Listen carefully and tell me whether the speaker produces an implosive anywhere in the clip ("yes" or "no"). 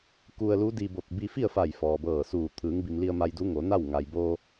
no